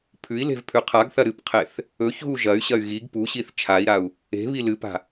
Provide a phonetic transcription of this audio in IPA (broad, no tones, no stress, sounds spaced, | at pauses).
pʰ ʉ i̯ l e̤ v pʰ ʉ qʰ a ɡ θ ɐ ɾ ɨ p qʰ e θ | ɵ ç ɣ u ʒ ɐ y̯ ɕ ɐ y̯ ɣ i ɡ p u ɕ i θ t͡ʃʰ a i̯ ɾ a u̯ | e̤ β i l ɨ p a̤